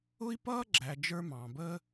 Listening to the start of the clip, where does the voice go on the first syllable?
high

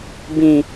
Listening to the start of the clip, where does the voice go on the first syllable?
falling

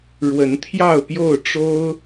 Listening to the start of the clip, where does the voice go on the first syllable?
rising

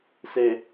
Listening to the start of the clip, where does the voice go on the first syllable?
low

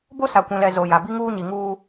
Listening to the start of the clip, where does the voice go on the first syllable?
high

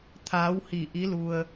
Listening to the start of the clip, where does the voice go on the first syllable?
rising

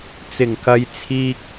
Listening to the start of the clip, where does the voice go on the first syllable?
low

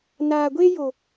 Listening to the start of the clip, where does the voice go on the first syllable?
low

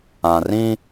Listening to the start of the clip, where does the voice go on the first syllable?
low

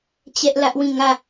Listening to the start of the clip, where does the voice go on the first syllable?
high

